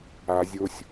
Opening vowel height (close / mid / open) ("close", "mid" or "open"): open